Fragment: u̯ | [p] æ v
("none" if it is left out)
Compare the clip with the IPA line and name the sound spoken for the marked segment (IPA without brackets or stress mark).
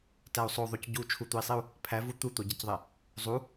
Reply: pʰ